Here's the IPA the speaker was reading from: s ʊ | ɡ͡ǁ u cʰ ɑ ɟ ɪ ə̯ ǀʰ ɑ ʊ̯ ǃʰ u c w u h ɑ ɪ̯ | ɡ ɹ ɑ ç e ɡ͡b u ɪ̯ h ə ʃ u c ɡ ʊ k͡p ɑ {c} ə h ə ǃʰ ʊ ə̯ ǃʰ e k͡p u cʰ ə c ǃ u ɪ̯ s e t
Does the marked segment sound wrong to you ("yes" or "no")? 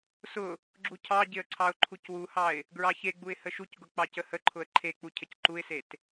no